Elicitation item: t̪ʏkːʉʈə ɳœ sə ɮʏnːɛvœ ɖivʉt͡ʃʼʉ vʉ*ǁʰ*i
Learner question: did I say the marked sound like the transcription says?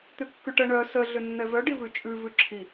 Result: yes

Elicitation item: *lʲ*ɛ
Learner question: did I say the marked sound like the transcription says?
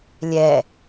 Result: yes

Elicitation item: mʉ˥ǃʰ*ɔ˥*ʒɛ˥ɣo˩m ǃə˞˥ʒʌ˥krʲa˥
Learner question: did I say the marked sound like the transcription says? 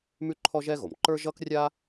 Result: yes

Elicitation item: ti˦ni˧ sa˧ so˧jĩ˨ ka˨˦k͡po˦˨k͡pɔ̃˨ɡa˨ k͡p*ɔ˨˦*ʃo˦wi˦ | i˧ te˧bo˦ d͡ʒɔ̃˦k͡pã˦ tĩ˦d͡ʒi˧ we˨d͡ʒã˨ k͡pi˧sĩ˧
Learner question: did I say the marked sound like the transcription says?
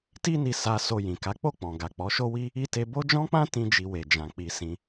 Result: yes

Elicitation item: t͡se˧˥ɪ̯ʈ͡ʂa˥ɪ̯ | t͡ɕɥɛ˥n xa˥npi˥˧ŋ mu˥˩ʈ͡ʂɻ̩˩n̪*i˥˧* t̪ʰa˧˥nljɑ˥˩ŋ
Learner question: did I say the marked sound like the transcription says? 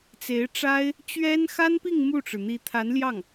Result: no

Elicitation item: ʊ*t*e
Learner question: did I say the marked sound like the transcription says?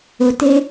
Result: yes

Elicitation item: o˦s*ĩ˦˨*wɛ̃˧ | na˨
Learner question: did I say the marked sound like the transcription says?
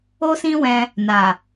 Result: no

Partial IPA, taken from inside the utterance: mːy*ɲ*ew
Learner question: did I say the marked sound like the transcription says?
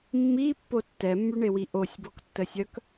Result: no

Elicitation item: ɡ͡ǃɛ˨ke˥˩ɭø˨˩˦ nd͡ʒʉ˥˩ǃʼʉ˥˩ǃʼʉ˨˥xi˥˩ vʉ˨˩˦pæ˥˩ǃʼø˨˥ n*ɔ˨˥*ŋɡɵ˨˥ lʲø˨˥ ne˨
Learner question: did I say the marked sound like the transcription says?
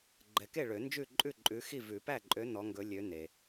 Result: yes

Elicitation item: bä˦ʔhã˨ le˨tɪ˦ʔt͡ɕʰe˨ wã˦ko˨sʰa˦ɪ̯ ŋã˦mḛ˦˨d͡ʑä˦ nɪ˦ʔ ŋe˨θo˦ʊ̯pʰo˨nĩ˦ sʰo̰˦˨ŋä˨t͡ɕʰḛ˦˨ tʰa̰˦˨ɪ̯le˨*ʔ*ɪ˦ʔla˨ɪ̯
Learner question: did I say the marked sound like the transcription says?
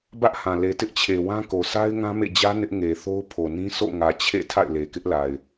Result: no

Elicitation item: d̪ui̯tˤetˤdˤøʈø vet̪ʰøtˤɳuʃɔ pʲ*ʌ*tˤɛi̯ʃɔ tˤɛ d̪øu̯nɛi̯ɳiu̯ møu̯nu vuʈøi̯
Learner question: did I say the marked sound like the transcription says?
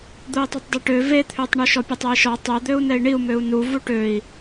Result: no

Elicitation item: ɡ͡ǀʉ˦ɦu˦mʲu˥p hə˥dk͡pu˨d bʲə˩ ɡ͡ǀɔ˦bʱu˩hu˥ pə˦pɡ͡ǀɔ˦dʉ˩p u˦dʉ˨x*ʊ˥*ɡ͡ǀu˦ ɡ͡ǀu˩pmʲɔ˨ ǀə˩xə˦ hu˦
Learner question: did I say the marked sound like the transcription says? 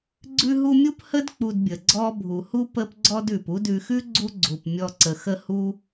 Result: no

